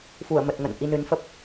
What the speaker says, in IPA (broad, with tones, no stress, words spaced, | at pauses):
fu˧˩ə̯mə˨˩t̚ŋə̰˧˨n ʔi˧nɨ˨˦nfə˦˥p̚